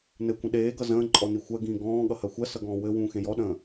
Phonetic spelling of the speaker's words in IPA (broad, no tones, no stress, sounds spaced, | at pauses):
n ɘ kʷ ə̃ ɗ eː ɡ ʌ z ə̃ː ǃʼ ɔ n i xʷ ɜ ɡ ĩː ɡ ɔ̃ː ɠ ʌ h ɜ xʷ ɜ s ʌ ɡ ɔ̃ː w ɘ w ũː x ẽ j ɔ ɗ ə̃ː